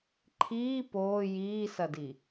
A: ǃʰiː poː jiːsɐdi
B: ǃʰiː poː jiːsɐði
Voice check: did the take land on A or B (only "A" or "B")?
A